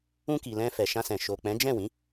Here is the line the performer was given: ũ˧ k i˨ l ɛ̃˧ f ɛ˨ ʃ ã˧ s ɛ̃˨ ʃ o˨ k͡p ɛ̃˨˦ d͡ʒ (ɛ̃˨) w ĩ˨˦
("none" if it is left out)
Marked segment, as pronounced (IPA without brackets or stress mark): ɛ̃˦˨